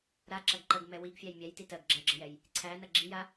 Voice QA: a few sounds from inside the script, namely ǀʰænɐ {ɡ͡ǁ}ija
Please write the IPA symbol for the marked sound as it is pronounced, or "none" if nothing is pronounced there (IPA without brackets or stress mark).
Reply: ɡ͡ǁ